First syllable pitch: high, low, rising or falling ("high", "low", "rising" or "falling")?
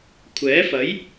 rising